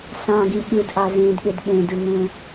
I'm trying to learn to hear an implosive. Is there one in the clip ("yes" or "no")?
yes